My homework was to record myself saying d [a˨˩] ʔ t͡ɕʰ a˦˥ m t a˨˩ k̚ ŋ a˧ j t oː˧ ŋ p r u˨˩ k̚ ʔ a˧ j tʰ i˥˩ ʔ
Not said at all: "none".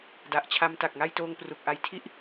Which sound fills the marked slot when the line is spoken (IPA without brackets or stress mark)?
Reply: a˨˩